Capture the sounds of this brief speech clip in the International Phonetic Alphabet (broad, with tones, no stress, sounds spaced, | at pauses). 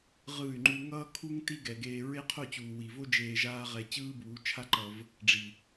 ʁ ɯː˦˨ y̯ ŋ͡ǃ u˦ ŋ ʌː˦ kʰ u˦ ŋ t i˦ ɡ ɛ˨ ɡ eː˧ ɹ e˦ qʰ o˦˨ t͡ɕ uː˨ w i˨ v o˦ d͡ʒ eː˧ ʒ aː˦ ʁ ɛ˧ t͡ɕ ɯː˦ b uː˨˦ t͡ʃʰ a˦ ǃ ʌ˧ v | ɖ͡ʐ i˨